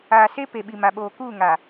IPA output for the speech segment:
aː˨ s e˦ p e˨ ɓ i˨ m a˨ ɓ oː˨ k uː˦˨ ŋ a˨

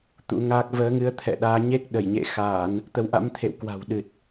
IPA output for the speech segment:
t̪ ṵ˧˥ ŋ aː˦˥ k̚ v əː˨˦ ŋ ɨ˨˦ ə̯ t̪ʰ ɛ̰˧˨ ɗ aː˨˦ ɲ e˦˥ k̚ ɗ ə˧˩ j ɲ ḛ˧˨ x aː˧˩˨ n | t̪ ə˨˦ w ʔ a̰˧˥ m t̪ʰ ḛ˧˨ w k w a̤˨˩ w ɗ ɨ˨˩ t̚

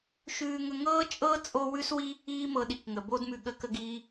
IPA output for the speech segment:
ʃ ʉː˧ ŋ ə˧ ŋ ɤː˥ t͡ʃʼ ɤː˥ t͡sʼ o˥ w ʉ˥ s w i˥ | iː˥ m ɤ˧ ɗ i˩ k ŋ ə˩ b o˥ d m ʉ˧ ɠ ə˧ k ə˧ ɡ iː˧

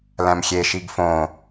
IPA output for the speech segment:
l æ̃ m xʲ e ʃ i ɡ f õ

